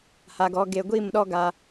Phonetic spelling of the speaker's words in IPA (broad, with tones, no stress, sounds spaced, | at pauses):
h a˨ ɡ ɔ˨˦ ɡ e˨ ɡʷ i˦˨ m ɗ ɔ˦ ɡ a˦